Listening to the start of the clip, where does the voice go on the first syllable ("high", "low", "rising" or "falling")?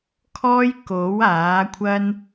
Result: high